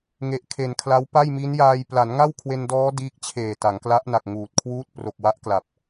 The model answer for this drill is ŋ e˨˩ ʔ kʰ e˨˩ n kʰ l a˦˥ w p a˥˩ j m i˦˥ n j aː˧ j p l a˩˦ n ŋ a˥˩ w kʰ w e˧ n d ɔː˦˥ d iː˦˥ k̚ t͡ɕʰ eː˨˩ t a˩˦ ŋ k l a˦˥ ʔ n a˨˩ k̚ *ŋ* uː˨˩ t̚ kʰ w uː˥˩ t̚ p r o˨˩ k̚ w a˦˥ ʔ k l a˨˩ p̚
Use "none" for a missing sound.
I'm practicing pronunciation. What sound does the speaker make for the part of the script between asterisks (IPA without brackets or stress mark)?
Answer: ŋ